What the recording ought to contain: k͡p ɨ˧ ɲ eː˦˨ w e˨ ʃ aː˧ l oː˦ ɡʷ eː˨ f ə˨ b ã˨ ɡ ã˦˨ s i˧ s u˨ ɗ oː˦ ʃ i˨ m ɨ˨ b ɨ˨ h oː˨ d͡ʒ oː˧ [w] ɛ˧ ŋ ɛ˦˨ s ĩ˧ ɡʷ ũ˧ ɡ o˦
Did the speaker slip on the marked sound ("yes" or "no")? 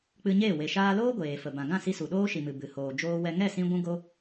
no